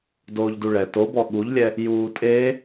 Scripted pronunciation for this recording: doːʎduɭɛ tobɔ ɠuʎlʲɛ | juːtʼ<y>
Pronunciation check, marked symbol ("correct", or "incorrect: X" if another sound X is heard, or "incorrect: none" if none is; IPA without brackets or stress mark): incorrect: e